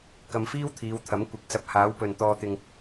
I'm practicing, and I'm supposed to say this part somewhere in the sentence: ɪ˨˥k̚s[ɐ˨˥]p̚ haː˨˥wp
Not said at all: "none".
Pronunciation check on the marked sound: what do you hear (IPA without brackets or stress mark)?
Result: ɐ˧